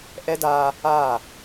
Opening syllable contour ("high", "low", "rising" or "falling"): high